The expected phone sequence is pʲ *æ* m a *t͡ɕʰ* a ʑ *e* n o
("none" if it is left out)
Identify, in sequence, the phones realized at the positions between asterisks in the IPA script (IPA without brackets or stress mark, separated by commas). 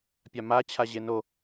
a, t͡ɕʰ, e